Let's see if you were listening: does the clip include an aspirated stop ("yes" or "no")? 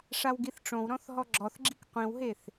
no